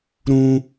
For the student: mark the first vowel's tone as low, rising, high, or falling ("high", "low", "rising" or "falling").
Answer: high